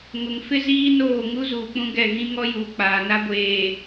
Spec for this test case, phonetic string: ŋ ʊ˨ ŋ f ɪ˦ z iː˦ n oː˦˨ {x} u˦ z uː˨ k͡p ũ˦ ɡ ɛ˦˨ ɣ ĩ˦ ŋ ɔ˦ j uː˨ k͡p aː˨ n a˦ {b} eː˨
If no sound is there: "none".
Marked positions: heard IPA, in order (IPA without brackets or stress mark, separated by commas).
ŋ, ɡʷ